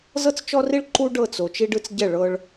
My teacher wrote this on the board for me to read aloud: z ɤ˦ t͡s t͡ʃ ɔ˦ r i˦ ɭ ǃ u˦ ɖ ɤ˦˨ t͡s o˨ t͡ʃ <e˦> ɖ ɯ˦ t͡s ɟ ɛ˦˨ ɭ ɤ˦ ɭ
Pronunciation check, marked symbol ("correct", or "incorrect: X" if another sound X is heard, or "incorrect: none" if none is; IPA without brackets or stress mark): incorrect: i˦